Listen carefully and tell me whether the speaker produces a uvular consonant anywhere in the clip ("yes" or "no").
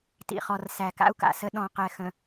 yes